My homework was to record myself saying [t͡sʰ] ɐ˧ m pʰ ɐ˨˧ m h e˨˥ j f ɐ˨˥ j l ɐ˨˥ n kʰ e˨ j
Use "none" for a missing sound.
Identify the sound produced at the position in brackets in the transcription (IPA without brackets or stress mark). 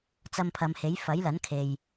t͡s